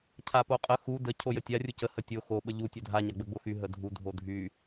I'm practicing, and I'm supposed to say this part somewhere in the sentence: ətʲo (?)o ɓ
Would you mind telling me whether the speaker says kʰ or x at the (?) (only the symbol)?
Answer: x